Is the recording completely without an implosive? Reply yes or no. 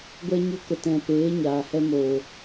yes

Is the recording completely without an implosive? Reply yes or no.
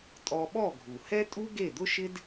no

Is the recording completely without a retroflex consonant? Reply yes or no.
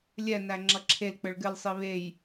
no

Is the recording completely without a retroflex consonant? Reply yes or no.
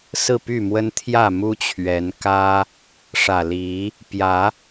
no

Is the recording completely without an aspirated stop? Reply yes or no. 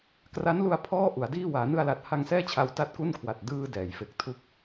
no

